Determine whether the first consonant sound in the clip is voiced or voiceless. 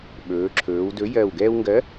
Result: voiced